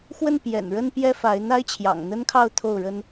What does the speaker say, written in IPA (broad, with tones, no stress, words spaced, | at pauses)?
xwə˥˩n pjɛ̰˨˩nɻə˥n pjɛ˥fa˧˥ɪ̯ n̪a˥ɪ̯t͡ɕʰjɑ̰˨˩ŋn̪ə˥nkʰɑ˥˧ʊ̯ t̪ʰo˥˩ʊ̯ɻə˥n